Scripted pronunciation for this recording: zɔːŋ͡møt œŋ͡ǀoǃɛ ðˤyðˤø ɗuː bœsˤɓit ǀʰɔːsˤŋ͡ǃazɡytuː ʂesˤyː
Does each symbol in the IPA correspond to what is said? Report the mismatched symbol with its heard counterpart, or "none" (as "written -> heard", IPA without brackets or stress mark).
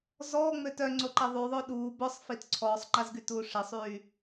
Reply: ɓ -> f